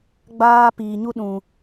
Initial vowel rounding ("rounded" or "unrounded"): unrounded